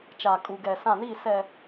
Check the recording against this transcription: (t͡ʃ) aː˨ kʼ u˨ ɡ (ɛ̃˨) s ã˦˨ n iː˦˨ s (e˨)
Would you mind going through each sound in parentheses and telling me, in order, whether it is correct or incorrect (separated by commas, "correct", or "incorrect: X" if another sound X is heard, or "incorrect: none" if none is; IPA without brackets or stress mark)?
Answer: correct, incorrect: ɛ˨, incorrect: ɛ˨